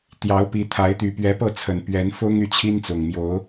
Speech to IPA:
t̪ j ɑ˨˦ ʊ̯ p i˨˦ t̪ʰ a˨˦ ɪ̯ t̪ y˨˩ p ɥ ɛ˨˦ p ɤ˥˨ t͡sʰ ə˨˩ n p ɥ ɛ˨˦ n f ʊ˦ ŋ y˥˨ t͡ɕʰ i˦ n t͡s ʊ˨˩ ŋ m j o˨˦ ʊ̯

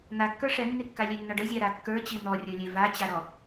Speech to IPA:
n̪ a kː ə˞ ʂ ɛ nː i kː a lʲ e nː ɔ ɖ ə zʲ a ɾ a kː ə˞ t͡ɕ i n̪ ɔ rʲ ə˞ lʲ e v a t͡ɕ a ɾ ɔ

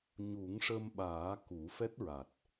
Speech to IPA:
ɲ u˨˩˦ ŋ ʂ ə˧ m ɓ aː˨˩˦ k u˨˩˦ f ɛ˦˥ t̚ ɹ a˨˩ t̚

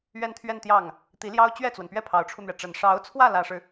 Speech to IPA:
ɥ ɛ˥˧ n t̪ʰ ɥ ɛ˥˧ n t̪ j ɑ˥˩ ŋ | t̪ i˧˥ l j ɑ˥ ʊ̯ t͡ɕ ɥ ɛ˥˩ t͡s w ə˩ n p ɥ ɛ˥˩ pʰ ɑ˧˥ ʊ̯ ʈ͡ʂʰ u˧ n̪ ɥ ɛ˩ ʈ͡ʂ ə˨˩ n ʂ ɑ˧˥ ʊ̯ t͡sʰ w ä˥˩ l ä˥ ʂ ɻ̩˨

